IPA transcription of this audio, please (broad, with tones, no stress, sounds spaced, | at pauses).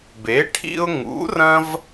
b e˨˥ ʈʰ ḭ˦ ʊ̯ ŋ ṵ˨˥ r ɐ̃˦ v